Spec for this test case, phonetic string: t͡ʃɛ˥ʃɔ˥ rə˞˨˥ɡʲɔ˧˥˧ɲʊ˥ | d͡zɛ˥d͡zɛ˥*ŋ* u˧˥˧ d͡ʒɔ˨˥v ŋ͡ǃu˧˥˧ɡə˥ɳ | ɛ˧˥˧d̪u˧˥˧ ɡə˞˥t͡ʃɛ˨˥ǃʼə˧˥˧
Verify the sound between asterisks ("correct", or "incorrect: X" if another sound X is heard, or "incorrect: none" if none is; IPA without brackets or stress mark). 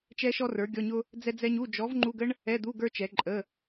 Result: incorrect: ɲ